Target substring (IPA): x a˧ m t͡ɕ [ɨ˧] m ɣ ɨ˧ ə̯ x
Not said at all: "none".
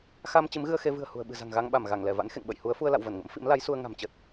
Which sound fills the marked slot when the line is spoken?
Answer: ɨ˨˦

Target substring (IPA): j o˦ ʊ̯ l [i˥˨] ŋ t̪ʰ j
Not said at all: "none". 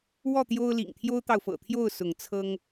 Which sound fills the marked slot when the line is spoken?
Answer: ḭ˨˩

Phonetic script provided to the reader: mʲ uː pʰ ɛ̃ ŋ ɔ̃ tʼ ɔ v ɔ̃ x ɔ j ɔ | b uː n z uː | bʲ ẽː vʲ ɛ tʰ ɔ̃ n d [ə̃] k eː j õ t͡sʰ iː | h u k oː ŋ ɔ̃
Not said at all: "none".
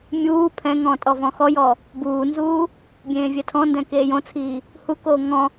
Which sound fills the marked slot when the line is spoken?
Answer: ɛ̃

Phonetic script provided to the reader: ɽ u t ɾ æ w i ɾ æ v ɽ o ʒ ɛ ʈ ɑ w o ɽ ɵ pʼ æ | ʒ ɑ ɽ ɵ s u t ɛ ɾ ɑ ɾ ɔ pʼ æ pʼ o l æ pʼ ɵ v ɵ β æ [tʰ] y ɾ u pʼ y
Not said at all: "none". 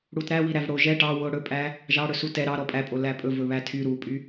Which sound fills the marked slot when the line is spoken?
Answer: tʰ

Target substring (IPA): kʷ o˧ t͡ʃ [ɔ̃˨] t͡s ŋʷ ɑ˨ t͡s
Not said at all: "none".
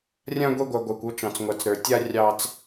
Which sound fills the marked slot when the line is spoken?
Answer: ɑ̃˨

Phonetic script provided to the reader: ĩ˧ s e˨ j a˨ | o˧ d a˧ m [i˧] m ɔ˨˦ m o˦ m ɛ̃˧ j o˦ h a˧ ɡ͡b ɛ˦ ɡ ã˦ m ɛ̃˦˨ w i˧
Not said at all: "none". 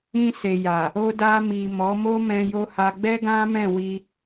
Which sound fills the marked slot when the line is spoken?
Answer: i˨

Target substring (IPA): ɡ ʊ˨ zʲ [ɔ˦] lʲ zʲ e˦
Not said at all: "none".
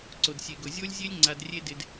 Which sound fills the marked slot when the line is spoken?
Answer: o˦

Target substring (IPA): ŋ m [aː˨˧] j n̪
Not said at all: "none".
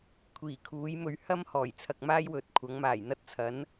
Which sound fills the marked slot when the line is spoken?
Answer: aː˨˩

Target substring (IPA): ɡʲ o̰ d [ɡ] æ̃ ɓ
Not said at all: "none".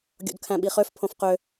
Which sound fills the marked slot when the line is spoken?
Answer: kʰ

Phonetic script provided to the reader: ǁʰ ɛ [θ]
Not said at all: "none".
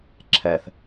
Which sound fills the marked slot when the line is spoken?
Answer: θ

